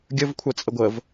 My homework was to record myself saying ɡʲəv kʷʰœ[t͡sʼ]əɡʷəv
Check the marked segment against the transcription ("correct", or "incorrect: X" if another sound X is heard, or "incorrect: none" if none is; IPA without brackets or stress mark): correct